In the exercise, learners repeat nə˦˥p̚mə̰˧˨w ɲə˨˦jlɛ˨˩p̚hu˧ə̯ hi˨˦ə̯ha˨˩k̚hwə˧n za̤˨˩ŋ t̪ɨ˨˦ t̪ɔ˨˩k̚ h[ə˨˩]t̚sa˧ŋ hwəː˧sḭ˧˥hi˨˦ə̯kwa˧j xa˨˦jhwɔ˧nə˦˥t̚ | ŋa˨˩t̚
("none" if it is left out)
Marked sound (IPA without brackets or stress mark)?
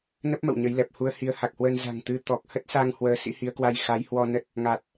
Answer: ə˦˥